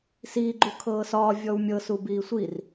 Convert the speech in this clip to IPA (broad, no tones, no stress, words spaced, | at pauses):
siː ɡ͡ǃukʰɤːsɒː vʲɔwmʲɤ subiːsʷir